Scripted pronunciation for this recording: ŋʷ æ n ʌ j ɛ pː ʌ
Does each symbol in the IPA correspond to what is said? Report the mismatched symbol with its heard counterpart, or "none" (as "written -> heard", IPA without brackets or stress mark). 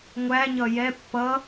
n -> ɲ